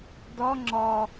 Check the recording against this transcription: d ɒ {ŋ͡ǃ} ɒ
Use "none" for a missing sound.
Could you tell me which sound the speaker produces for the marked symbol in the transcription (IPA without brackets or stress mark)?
ŋ͡ǁ